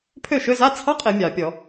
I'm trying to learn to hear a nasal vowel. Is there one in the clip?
no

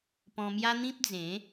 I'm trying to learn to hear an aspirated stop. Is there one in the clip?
no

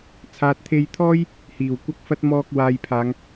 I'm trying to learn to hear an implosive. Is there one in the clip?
no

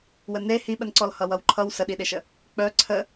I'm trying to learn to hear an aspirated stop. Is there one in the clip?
yes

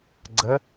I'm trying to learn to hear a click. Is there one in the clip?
yes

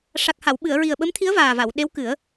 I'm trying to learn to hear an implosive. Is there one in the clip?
yes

